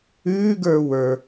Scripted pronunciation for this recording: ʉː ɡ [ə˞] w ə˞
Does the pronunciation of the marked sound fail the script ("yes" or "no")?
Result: no